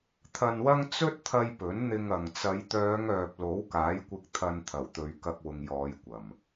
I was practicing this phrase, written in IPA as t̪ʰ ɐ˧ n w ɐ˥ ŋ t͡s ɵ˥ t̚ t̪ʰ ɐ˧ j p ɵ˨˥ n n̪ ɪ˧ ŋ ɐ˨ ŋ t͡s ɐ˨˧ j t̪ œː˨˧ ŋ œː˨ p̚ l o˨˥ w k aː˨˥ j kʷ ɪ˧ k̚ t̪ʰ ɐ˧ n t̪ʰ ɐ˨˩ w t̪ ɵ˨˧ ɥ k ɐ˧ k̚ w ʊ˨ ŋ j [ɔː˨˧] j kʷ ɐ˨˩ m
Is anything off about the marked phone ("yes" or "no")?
no